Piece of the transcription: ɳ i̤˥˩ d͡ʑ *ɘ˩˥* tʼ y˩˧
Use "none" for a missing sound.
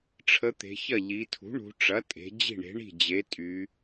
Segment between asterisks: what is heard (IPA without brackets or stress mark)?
e˩˥